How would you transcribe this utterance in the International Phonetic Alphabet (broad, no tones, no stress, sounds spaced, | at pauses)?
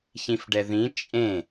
ç ĩ f ɖ ɛ ð ĩ t͡ʃʼ ẽ